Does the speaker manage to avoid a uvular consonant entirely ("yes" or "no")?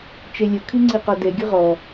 no